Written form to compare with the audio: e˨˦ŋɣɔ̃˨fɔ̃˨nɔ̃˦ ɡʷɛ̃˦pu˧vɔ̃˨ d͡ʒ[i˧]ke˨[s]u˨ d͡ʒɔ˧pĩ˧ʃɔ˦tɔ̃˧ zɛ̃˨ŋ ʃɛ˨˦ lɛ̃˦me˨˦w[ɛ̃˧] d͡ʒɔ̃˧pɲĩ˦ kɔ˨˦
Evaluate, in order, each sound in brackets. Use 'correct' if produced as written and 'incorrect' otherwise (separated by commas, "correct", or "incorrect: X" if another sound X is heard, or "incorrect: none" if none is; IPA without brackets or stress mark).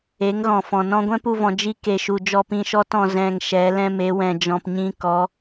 correct, incorrect: ʃ, correct